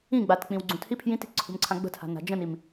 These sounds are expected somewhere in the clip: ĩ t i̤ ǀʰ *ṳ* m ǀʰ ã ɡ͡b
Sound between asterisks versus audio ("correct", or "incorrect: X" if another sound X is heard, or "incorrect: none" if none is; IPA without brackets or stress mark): correct